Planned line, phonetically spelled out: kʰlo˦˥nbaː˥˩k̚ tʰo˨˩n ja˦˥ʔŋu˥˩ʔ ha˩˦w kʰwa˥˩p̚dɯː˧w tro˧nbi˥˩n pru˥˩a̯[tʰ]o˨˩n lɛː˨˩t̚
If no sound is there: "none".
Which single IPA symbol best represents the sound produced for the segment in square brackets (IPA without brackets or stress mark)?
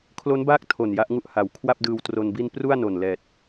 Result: n